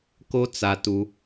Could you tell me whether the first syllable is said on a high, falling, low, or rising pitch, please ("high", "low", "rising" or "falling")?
high